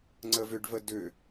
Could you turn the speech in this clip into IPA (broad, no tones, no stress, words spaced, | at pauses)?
ŋ͡ǀəvʏɖvə dʏ